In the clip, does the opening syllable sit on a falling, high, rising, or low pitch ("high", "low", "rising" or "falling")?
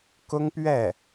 high